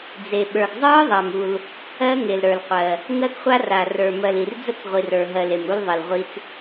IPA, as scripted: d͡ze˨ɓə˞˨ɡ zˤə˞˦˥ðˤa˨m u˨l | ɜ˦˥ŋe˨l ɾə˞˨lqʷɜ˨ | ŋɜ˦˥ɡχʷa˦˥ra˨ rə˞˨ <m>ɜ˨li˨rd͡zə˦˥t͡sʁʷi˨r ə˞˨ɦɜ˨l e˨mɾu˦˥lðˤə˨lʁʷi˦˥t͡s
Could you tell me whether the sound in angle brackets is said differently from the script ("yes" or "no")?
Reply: no